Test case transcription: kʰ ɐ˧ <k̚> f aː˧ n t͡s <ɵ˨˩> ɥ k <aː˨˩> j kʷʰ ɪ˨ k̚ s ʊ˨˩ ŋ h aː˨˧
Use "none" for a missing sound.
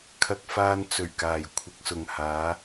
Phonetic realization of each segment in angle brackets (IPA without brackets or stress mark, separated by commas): k̚, ɵ˨˩, aː˨˩